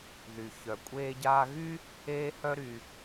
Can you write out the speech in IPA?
ð y˩ ç œ˩ kʷʼ eː˧ ɟ aː˧ ɣ y˥ | eː˥ h œ˥ ɾ y˩

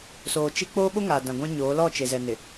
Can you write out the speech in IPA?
s oː˨ t͡ʃ i˦ k͡p oː˦ ɓ o˦ ŋ aː˨ d ã˨ ɡʷ ã˦ ɲ oː˨˦ l ɔ˦˨ t͡ʃ e˨ z ɛ˨ n ɪ˨

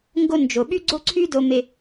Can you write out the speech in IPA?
ŋ ɡ o˧ n d͡ʒ o˩ ɓ y˥ ɡ͡ǀ o˥ ǀʰ y˥ d o˧ m e˧

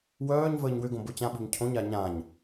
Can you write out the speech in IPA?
w œː ɲ v əː ɲ w ʏ ɡ õ b o t͡ɕ ã ɓ i̤ ɲ cʰ õ ɲ a ɲ ã ɲ

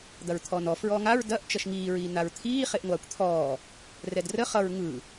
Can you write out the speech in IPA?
d̪ ɐ ɹ t̪ʰ ɔː n ɔ f ɹ ɔː ŋ a ɹ d ɐ ʔ t͡ʃ ʌ ʃ ŋ iː ɹ iː n a ɹ t̪ʰ iː χ e ʔ ŋʷ aː kʷ t̪ʰ ɔː | r ɛ d r ə χ ʌ ɹ ŋ ɯ

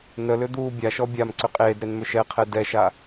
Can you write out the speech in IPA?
n ə l ʏ d̪ uː bʲ a ʃ ɔ bʲ a m ǀ ʏ qʼ eː d ɾ e n m ʏ ʃ ɛ qʰ ɛ d ɛ ʃ a

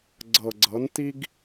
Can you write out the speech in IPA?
ɡ͡ǀ ɤ˨ ɡ͡ǀ ɤ˨˦ n t i˦ ɡ

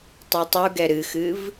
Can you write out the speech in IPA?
tˤ u tˤ u ɡ ɛ ɾ ɨ x ɨ v

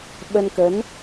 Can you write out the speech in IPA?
ɓ ə˧ n k ə˨˦ n

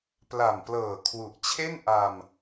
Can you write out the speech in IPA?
p l a˨˩ m p l ɤː˨˩ kʰ w u˨˩ ʔ t͡ɕʰ e˥˩ n ʔ a˧ m

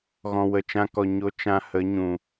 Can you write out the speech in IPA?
ɣ ɔ̃˨ w ə˨ t͡ʃ ã˧ k ɔ˨ ɲ o˧ t͡ʃ ã˧ h ə˨˦ ɲ ũ˨

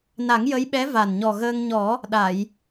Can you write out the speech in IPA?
n a˨˩˦ ŋ j ə˧˥ j ɓ ɛ˧˥ v a˨˩ n ɲ ɔ˨˩ ɣ əː˧ ŋ ɲ ɔ˨˩˦ | ɗ a˨˩˨ j

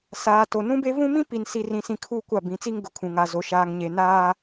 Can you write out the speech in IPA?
s aː˨ t o˨ n ũ˦ b e˦ v ũ˦ m ĩ˦ p i˨ n s i˨ r ĩ˨ s ĩ˨ kʰ uː˦ kʷ a˦˨ b ĩ˨˦ t͡s i˦ ŋ ɡ ʊ˨ kʰ ũ˨ ŋ a˨ z o˨ ʃ aː˨ ŋ ɲ e˨ n aː˦

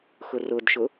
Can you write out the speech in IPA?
x ʊ r ʊ d ʃ ʊ

